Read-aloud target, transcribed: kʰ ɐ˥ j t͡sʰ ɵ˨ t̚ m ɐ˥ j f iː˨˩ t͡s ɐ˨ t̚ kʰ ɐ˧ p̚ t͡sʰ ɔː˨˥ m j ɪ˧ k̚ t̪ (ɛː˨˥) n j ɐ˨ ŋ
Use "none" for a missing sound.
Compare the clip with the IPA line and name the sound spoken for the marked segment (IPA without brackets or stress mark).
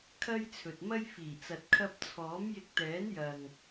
ɛː˨˥